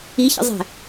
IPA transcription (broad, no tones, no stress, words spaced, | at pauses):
içə̰zˤɛ̤